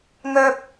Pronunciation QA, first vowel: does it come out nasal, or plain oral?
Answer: oral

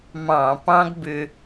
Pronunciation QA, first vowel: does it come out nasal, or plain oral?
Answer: nasal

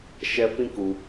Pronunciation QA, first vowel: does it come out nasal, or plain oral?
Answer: oral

